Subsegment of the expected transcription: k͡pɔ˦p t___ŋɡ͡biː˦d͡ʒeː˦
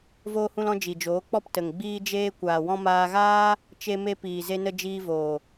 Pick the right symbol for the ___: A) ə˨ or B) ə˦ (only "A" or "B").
A